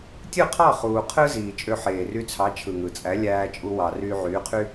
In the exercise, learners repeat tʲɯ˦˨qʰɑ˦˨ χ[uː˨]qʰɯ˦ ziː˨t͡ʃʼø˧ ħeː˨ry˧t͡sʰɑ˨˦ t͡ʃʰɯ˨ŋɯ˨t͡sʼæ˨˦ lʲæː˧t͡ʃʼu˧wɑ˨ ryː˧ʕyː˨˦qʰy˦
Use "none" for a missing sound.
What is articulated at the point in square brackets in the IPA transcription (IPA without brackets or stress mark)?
uː˨